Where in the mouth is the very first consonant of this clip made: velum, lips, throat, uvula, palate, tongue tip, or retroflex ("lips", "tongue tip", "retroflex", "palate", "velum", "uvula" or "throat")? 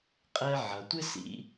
uvula